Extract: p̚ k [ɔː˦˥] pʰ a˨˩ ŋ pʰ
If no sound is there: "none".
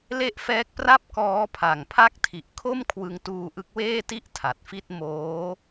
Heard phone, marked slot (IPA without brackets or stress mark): ɔː˦˥